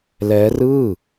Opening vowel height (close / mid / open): mid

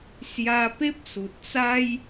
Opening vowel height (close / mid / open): open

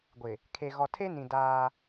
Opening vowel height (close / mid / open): close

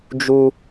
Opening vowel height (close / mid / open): close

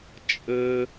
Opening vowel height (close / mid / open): mid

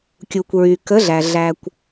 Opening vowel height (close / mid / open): close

